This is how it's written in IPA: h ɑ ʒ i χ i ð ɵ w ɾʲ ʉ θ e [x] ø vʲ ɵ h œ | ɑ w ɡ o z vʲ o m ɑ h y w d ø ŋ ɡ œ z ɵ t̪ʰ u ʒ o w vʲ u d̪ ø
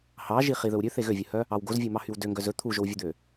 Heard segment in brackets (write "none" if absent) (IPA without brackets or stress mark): ɣ